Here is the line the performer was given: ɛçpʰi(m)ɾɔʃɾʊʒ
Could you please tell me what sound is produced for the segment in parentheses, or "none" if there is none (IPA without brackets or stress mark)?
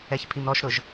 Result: m